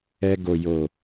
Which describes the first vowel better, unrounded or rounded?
unrounded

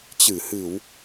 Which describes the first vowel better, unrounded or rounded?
unrounded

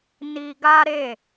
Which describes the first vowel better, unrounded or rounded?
unrounded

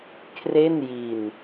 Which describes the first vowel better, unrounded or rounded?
unrounded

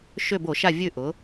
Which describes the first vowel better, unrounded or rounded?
rounded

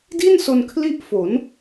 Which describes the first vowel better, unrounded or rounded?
unrounded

